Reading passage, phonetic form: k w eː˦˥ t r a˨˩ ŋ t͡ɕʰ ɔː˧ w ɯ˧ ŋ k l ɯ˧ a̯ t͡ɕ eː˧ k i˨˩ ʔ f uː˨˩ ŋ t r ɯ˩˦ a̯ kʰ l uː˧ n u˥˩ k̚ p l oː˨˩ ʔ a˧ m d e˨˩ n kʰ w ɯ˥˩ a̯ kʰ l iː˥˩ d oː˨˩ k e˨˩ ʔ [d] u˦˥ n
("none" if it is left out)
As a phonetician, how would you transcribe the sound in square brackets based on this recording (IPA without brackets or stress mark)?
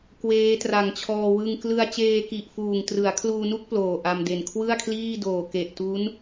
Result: t